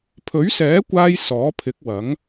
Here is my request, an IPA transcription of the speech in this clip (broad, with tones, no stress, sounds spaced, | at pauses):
pʰ ɵ˨˥ ɥ s ɛː˨˥ kʷ aː˧ j s ɔː˨˥ pʰ ɪ˨˥ k̚ w ɐ˨˥ ŋ